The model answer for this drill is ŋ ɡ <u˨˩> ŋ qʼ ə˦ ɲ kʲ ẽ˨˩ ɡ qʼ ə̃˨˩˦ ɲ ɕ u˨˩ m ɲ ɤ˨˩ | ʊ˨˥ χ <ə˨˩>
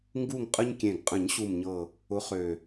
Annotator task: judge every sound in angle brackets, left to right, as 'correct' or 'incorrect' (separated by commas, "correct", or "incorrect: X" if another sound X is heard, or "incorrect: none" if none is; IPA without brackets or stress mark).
incorrect: u˦˨, incorrect: ø˨˩